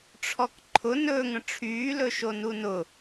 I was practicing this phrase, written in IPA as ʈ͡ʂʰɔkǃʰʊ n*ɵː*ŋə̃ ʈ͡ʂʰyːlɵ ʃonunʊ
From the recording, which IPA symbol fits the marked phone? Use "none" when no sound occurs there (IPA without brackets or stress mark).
ɵː